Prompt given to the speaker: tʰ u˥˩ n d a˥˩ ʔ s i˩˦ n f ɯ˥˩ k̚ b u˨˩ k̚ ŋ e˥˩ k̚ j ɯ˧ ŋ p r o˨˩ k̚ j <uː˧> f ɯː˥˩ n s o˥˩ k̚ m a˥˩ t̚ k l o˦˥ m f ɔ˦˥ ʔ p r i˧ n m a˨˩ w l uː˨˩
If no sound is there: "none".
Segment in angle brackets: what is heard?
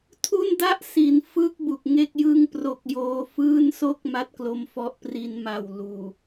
oː˧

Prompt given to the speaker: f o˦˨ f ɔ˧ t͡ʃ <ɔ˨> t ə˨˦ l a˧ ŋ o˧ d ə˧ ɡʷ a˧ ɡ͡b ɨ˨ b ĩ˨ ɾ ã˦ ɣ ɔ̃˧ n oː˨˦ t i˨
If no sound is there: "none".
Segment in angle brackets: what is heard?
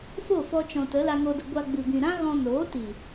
ɔ̃˨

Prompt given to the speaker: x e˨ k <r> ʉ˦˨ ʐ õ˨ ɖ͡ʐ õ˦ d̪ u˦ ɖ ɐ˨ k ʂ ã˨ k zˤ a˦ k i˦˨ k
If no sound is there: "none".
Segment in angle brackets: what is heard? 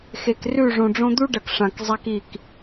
r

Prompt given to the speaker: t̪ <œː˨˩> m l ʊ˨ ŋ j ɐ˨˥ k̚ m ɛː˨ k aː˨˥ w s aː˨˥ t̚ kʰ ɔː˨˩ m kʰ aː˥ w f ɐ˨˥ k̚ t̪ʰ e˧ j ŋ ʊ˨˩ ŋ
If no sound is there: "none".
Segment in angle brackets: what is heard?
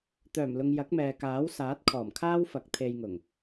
œː˨˩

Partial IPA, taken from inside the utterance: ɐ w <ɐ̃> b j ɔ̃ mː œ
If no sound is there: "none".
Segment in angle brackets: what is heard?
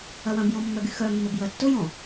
ɐ̃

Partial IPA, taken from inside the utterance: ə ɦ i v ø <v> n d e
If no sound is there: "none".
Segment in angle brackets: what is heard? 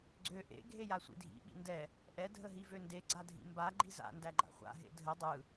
none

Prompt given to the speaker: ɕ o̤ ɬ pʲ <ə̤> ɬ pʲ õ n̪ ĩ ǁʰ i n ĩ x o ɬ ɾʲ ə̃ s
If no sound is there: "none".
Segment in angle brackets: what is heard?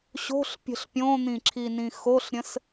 ə̤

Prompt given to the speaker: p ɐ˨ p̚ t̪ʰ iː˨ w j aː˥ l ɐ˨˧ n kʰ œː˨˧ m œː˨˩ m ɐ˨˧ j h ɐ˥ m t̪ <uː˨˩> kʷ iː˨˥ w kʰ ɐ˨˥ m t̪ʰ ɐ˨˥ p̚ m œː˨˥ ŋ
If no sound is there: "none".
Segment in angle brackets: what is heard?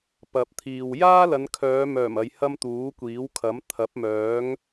uː˨˥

